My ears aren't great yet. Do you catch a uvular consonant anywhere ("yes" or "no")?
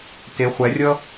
yes